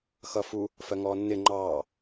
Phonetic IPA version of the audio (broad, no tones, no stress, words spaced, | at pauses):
xʌfu | fɜŋɔːnːɪ ŋ͡ǃɑː